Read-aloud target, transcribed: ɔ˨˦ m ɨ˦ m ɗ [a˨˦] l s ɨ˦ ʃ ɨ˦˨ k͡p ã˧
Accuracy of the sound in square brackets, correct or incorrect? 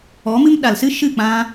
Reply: incorrect